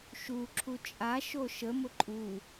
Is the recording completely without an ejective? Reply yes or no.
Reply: no